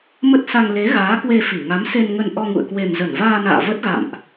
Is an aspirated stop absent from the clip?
yes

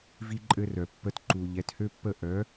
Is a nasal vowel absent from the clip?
yes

